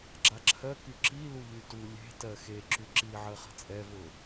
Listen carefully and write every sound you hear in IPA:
ɡ͡ǁaǁʰɜ kyǁi luʎytu lʲe̤ tɜxe ǁyǁi ʕɜχə̤t͡sʼɛ vʊ

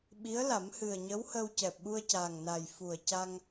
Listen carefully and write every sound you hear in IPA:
ɓi˧˥ə̯la˨˩˦m hɨ˨˩ə̯ɲə˧˥whə˧w cɛ˨˩p̚ ɓu˧ə̯caː˨˩ŋna˨˩j fu˨˩ə̯ca˧ŋ

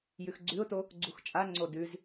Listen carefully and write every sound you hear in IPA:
jʉxɡ͡ǀʉʊ̯to | ɡ͡ǀuxt͡ʃʼaŋ͡ǀo dʉz

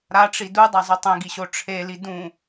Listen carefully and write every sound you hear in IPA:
ɾaʈ͡ʂi dudˤazˤo tˤẽɡiɕo ʈ͡ʂʰeli dũ

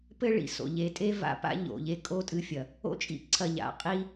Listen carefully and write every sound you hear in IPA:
pɘ˦ ɭḭ˧so̰˨ ʎe˨tʼe˦ va̰˧pa̰˦ ʎo̰˨ʎe˦ kʼo˦tʼɨ˧fʲɐ˨ | o̰˦ t͡ʃʼḭ˦ǀʰɐ˧ʎa̰˨ qʼi˦

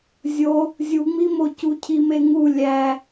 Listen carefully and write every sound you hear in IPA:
zʲo | zʲuŋ͡mimo cucʰimeŋu lʲæ

